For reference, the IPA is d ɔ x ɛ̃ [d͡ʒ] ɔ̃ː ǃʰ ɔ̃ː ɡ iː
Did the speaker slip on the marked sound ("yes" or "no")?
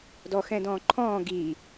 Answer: yes